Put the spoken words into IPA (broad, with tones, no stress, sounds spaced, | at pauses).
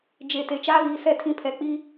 d͡ʒ e˨ t e˨ t͡ʃ aː˦ β iː˨ s ɛ˦˨ tʰ ĩ˦ pʰ ɛ˨ k͡p i˦